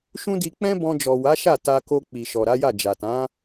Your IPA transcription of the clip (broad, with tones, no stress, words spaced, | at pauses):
ʃũ˦di˧ k͡pɛ̃˦bɔ̃˧d͡ʒɔ˨ wa˨˦ʃa˦˨ ta˧ko˧ k͡pi˨ʃɔ˨ɾa˨˦ja˦˨ d͡ʒa˨tã˨˦